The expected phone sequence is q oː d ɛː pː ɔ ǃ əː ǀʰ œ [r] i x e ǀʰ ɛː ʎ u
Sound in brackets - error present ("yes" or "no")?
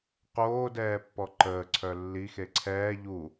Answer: yes